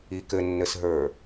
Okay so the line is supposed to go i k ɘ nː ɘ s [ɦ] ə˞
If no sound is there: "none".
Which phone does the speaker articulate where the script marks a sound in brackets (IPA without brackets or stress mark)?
ɦ